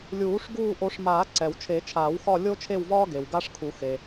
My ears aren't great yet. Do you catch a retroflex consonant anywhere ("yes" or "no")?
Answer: yes